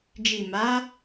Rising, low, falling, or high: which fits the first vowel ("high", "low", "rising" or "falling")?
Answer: low